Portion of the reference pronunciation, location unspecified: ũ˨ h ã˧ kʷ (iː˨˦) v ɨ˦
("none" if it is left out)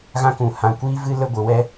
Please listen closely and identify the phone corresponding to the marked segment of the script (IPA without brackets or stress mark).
iː˦